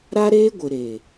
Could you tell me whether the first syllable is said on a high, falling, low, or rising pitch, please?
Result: high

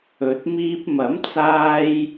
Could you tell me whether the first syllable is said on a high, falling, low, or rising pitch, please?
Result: rising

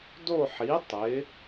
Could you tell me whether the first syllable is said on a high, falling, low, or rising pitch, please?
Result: falling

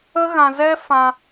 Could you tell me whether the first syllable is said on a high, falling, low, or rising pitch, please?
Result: high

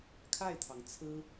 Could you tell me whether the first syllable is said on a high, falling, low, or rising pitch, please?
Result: falling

